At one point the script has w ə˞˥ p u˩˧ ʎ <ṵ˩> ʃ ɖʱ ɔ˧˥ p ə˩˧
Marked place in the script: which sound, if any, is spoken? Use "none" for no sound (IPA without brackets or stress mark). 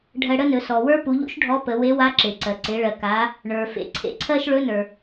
ṵ˥